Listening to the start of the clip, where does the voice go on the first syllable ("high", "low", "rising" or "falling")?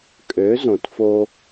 rising